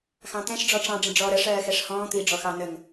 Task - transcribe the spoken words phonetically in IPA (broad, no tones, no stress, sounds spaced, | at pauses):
x ɑ̃ t̪ ɛ̃ ʃ ɖ͡ʐ ɔ ʈ͡ʂ ɑ̃ ɖ͡ʐ ə̃ ɖ͡ʐ ɔː ɾ ə ʂ ɜː x ɛ ʂ h ɔ̃ː t̪ i ɖ͡ʐ ɔ x ɑ n ə ŋ